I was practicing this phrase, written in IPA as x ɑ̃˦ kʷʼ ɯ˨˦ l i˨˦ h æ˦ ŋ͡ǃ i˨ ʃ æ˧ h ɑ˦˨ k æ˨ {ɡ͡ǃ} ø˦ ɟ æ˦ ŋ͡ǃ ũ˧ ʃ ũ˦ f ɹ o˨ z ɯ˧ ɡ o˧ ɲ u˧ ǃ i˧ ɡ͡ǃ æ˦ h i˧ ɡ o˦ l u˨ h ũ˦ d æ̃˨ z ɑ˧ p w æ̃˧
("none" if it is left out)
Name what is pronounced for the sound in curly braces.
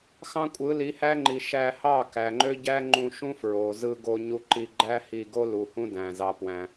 ŋ͡ǃ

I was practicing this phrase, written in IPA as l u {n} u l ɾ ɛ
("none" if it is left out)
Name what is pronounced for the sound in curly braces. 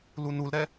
n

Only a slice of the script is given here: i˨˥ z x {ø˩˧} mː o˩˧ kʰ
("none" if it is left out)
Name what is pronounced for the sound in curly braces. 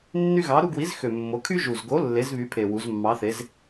ø˨˩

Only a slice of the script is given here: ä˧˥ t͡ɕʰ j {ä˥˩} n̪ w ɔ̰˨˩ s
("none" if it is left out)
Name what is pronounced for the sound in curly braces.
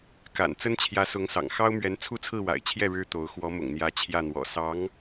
ä˥˩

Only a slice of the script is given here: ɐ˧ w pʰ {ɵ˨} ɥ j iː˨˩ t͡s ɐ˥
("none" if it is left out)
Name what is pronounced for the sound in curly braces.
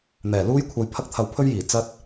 ɵ˥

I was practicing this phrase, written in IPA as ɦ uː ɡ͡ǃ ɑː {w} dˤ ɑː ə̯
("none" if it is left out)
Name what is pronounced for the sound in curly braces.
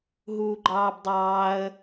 b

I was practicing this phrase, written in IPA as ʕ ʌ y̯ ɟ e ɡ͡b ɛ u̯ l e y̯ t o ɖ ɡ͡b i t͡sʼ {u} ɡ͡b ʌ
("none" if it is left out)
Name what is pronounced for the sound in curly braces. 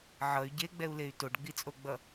o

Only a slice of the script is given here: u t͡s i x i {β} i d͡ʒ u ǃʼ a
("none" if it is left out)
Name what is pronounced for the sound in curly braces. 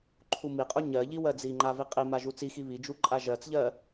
β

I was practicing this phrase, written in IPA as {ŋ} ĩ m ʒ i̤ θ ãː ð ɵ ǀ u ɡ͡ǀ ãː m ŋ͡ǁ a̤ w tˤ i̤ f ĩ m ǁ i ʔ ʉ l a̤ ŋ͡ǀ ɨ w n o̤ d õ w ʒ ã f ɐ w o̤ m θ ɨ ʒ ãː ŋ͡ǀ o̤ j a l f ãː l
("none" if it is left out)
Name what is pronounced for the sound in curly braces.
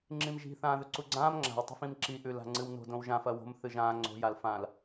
ŋ͡ǁ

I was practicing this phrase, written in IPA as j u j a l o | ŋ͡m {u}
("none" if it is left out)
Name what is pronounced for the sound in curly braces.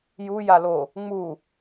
u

